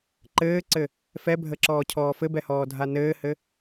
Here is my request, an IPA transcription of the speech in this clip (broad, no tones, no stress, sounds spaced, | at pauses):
ǃ ɘː ǀ ɘ | f ɛ bʱ ə ǁ ɔː cʰ ɔː f ɘ b ɛ h ɔː dʱ a n ɘː h ɘ